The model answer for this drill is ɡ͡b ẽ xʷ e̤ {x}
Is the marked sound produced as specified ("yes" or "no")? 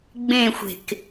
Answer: no